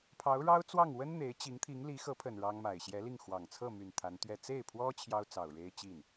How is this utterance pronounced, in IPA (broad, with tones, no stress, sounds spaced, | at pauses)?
pʰ ɑ˧˥ ʊ̯ ɻ ɑ˥ ʊ̯ t͡s w ɑ˥˩ ŋ w ə˥ n n̪ e˧˥ ɪ̯ t͡ɕ i˧˥ ŋ t̪ʰ i˧˥ ŋ l i˧˥ x ɤ˧˥ pʰ ə˨˩ n ɻ ɑ˥ ŋ m a˨˩ ɪ̯ ɕ j ɛ˧˥ l i˥˩ ŋ x w ɑ˨˩ ŋ t͡sʰ ɤ˥˩ m y˨˩ n t̪ʰ a˧˥ n t̪ ɥ ɛ˥˧ t͡s e˥˩ ɪ̯ pʰ w ɔ˥ t͡ɕʰ j ɑ˥ ʊ̯ t͡s ɑ˨˩ ʊ̯ ɻ e˥ ɪ̯ t͡ɕ i˥˩ n